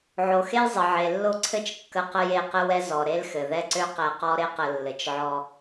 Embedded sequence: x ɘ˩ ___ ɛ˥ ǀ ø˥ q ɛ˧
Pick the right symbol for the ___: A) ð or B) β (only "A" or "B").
A